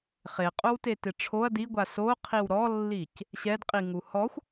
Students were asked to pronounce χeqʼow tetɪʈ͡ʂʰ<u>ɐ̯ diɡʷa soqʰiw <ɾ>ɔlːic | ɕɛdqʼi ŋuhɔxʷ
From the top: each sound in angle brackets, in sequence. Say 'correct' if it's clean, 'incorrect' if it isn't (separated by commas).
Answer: incorrect, correct